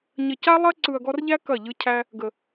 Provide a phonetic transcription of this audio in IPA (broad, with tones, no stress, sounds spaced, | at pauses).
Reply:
ɲ ə˨ c a˦ lˠ ɐ˦ ǀ ɯ˨ ɐ̯ ɡ ɔ˧ r ʎ æ˦ k ɐ˦˨ ʎ ɯ˦ cʰ æ˦ | ɡ ə˨